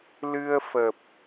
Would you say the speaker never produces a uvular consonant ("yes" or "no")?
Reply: yes